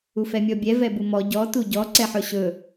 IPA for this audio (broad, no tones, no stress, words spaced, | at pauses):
ufɛmʲɔbʲɛ vɛbumɔ ɟɔ tuɟɔ ǀɛħɵɕɵ